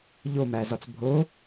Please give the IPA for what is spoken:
ʎ o m æ z ɒ t͡s bʱ o

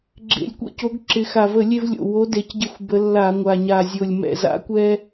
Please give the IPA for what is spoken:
ɡ͡ǁ ḛ˨˩ lʲ kʷ ḛ˦ c o˨˦ ɡ ǁ ɪ˨˩ x a˨˩ v ə˧˩˧ lʲ e˦ v lʲ o̰˨˩ w o˨˦ d e˨˩ c ɟ ɪ˧˩˧ xʷ b ə˨˦ lː a˧˩˧ ŋʷ a˨˩ ɲ a˨˩ zʲ o˨˩ lʲ m ɛ̰˨˩ z a̰˨˦ kʷ ɛ˦

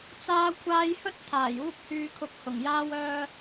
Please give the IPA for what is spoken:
t͡s aː˧ kʷʰ aː˥ j h ɵ˥ t̚ t̪ʰ aː˨˩ j uː˥ p̚ h yː˧ kʰ ʊ˧ k̚ h ʊ˨˩ ŋ j aː˥ w œː˧

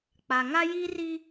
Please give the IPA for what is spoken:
k͡p a˨ ŋ a˦ j iː˦ r i˦

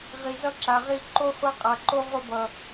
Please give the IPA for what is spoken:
ʁ i˨ z ʌ˧ ǁ a˨ ʁ i˧ ǃ o˦ χʷ a˦ qʼ a˨ ǃ o˦ ʁʷ ʌ˧ b ʌ˨

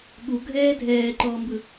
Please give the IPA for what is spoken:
ɠ u ɡʱ ɛː dʱ ɛː ǃ ɔː m b ɯ

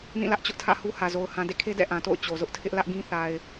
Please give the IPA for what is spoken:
n ĩ˦˨ l ä˦ ʔ t͡ɕ ʊ˦ ʔ tʰ ä̰˦˨ h u˦ h ä˨ z o˨ ʊ̯ h ã˨ d ḛ˦˨ kʰ e˦ d ɛ̰˦˨ ʔ ã˨ t o̰˦˨ ʊ̯ t͡ɕ o˨ z ʊ˦ ʔ tʰ ɪ˦ ʔ l ä˦ ʔ ɡ ĩ˦ θ a˨ ɪ̯

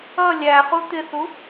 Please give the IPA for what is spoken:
ʌ lʲ æ χ u t̪ ɪ θ u

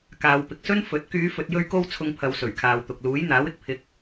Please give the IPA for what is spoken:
k aː˨ w p ɪ˨ k̚ s ɵ˥ n f ɵ˨˥ t̚ k yː˨˧ f ɵ˨ t̚ j ɵ˧ ɥ k o˥ w t͡sʰ ʊ˧ ŋ pʰ ɐ˨˧ w s ɵ˨˩ ɥ kʰ aː˨ w t̪ ʊ˨ k̚ l uː˨˥ j n̪ aː˨˥ w ɪ˧ k̚ pʰ ɪ˨˥ k̚

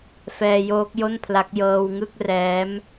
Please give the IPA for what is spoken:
f ɛː˧ j oː˦˥ k̚ j o˥˩ n pʰ l a˦˥ k̚ j ɤː˧ w ŋ ɯ˥˩ k̚ r ɛː˦˥ m

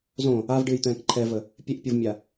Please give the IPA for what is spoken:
z õ | a v ɖ ɨː j t̪ ɛ̃ː k ǃʰ ɛ v ə | pʲ e ʔ pʲ o v mʲ a

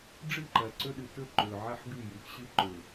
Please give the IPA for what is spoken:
ɖ͡ʐ ɨ˦˨ ǃ ɐ˨ ǀ ɵ˦ ɗ ɨ˨ t ɵ˦ ǃ ɵ˨ ʕ a˦ ħ ɡ ʉ˦˨ j ɨ˨˦ x ɕ ɨ˦ ǃ ɵ˨

